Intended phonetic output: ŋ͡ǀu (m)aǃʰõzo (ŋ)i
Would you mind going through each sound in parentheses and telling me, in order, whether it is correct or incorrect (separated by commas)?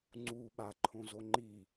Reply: incorrect, incorrect